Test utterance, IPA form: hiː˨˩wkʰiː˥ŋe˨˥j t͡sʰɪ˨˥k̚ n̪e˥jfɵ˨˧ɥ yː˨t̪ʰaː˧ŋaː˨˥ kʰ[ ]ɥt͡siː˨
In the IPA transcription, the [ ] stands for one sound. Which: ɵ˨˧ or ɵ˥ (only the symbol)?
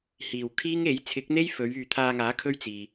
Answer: ɵ˥